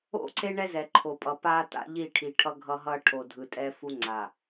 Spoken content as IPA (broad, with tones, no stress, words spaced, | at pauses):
o̰˦˨ǀe˦ ɳɛ˦zɛ˨ǃʰo˨pʼʌ˨ pa˦ta̰˦ ʎi˦˨ʈʰi˨ ʈʰʌ˦ ɡʱʌ˦ɦʌ˦ ʈʰo˨dʱɯ˨tʼɛ˦ fu˦ŋ͡ǀa˨